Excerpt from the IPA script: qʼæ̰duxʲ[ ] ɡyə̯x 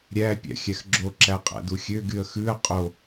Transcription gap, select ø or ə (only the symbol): ø